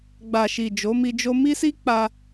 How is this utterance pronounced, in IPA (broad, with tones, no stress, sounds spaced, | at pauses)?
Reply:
ɡ͡b a˨ ʃ i˨ d͡ʒ o˨˦ m i˧ d͡ʒ o˦ m i˦ s i˦ k͡p a˧